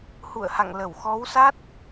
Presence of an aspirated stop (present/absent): absent